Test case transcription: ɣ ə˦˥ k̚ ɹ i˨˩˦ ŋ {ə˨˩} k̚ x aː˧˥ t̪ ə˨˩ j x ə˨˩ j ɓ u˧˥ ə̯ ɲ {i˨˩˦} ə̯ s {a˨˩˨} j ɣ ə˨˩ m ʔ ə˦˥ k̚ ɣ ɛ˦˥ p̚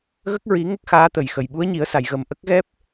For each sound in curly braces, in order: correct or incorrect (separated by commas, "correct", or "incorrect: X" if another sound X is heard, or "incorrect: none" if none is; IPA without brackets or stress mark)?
incorrect: ə˦˥, correct, correct